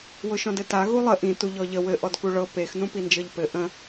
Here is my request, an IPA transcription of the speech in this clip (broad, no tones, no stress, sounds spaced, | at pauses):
w ʊ ʃ ɔ̃ d ɘ t a ɣ u lˠ ə ʔ ĩ t u ʎ ɔ ʎ ə w ɘ ʔ ɔ d k u ɭ ɤ p e x n ũ p i n d͡ʒ ɤ ʎ p ɘ ʔ ə̃